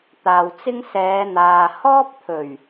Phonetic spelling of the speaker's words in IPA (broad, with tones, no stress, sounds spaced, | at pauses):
t̪ aː˨ w t͡s ɪ˥ ŋ s ɛː˨˧ n̪ aː˨ h ɔː˥ p̚ t̪ʰ ɵ˨˩ ɥ